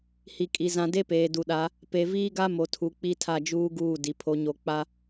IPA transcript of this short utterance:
h i˨ kʼ i˨ z ã˨ d e˦ p eː˨ d u˨ ɗ a˨˦ | p e˨ v iː˦ ɡ a˦ m o˨ tʰ u˨ k͡p i˦ tʰ a˦˨ d͡ʒ uː˦ ɡ uː˦˨ d i˨ pʰ o˨ ɲ o˨ k͡p a˦

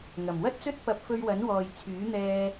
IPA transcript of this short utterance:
ŋ ɐ˨˩ m w ɐ˥ t̚ t͡s ɵ˥ t̚ p ɐ˧ p̚ f ɵ˧ ɥ w ɐ˨˥ n w ɔː˨ j t͡sʰ yː˨˥ n̪ ɛː˧

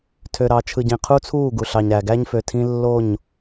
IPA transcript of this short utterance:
tʰ ø˨ ɾ ɑ˨ t͡ʃʰ ɯ˨ ɟ ĩ˨ qʰ u˦ t͡sʰ uː˦˨ ɡ u˨ ɬ ɑ˨ ɲ ɾ æ˨ ɡ æ˦ ɲ f ø˨ tʰ ĩ˦ lː o˦˨ ɲ

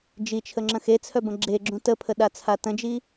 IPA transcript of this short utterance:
d͡ʒ i t͡ʃʰ ə ŋ͡ǁ ə̃ x e t͡sʰ œ b ə̃ ɡ͡ǁ e ɡ͡ǁ ũ t ə pʰ ə ɗ a t͡sʰ a t ə̃ d͡ʒ i

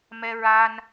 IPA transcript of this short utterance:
m ɛ˧ ɹ a˧ n

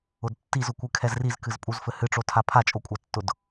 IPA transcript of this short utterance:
ʊ d tː i z ʊ kʷ ɨ kʰ ɛ z r i z k ɨ z pʼ u z f ɘ h ɨ ʈ͡ʂ o tʰ a pʰ a t͡ʃʼ o kʷʼ a tː ʊ d

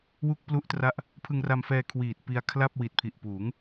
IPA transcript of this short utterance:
w u˥˩ k̚ p l u˥˩ ʔ t r a˥˩ ʔ | pʰ ɯ˧ ŋ r a˧ m f ɛː˧ kʰ w iː˨˩ t̚ p i˧ a̯ kʰ l a˥˩ p̚ w i˨˩ t̚ pʰ i˨˩ ʔ p uː˩˦ ŋ

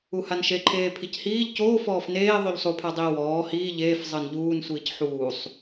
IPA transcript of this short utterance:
u h a n ʃ e ǃʰ eː pʰ i c h iː ʎ c oː f ɔː f n eː ðˤ u ʎ sˤ u pʰ a dˤ iː w ɔː h iː ʎ eː f zˤ ɤ n ʎ uː n sʷ iː c ħ uː sˤ

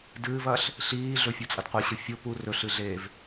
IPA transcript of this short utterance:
d ɨː v ɐː ɬ | ɬ iː ɮ ɵ fʲ u t͡sʼ ɐ d qʷ i ɕ ɨ fʲ o p u r ɵ ɬ ɨ ɮ eː v

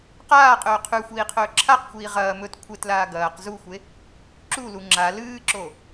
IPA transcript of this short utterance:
q aː qʼ ɵː qʰ ʉ xʷ iː qʰ ɵː ǁʰ a q xʷ iː ʁ ɐː m ɵ t kʷʰ e t l aː ɡ ɐː q z u xʷ e | ǁ u l u ŋ͡ǁ a l ɨː ǁ o

